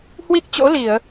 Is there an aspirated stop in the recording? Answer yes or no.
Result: no